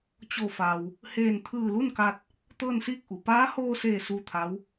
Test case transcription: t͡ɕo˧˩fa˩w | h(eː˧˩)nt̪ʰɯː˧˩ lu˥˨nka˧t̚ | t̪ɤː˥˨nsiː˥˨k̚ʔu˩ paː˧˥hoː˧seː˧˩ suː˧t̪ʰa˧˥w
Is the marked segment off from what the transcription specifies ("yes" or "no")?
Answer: no